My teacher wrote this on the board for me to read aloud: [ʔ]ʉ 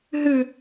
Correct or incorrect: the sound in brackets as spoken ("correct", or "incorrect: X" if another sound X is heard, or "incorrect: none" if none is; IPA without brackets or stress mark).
incorrect: ɦ